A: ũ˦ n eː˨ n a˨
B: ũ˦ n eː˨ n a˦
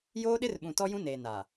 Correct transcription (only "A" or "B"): A